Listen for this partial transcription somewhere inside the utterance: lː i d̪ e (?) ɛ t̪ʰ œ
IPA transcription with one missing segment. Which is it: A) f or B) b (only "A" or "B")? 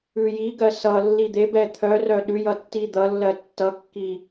B